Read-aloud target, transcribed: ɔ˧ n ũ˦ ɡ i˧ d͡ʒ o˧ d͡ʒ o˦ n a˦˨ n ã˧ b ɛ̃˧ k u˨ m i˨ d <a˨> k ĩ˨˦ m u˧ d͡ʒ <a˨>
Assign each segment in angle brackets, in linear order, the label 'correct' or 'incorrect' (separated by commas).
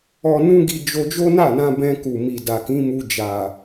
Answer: correct, correct